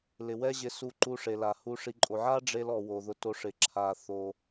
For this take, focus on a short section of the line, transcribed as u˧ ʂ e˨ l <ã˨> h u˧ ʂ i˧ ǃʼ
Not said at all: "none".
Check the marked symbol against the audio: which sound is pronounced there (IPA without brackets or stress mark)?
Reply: a˨